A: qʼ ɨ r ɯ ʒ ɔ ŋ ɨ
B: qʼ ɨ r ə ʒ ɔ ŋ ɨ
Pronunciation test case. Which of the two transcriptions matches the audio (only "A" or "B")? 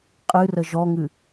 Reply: B